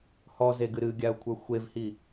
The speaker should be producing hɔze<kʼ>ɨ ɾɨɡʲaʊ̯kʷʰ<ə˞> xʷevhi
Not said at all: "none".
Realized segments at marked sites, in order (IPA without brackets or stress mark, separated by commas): ɡ, ə˞